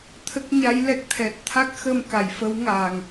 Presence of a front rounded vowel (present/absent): absent